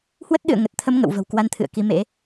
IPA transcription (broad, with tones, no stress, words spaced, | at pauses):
hwə˦˥t̚ɗɨ̰˧˨ə̯ ŋə˨˩t̚t̪ʰə˧m ŋə̰˧˨wvə̤˨˩wkwa˧nt̪ʰɨ̰˧˨ə̯ ki˨˦mḛ˧˥